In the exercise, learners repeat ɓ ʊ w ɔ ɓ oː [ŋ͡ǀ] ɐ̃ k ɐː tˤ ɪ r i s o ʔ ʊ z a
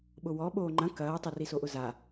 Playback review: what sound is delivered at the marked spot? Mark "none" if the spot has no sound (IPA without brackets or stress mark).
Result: ŋ͡ǃ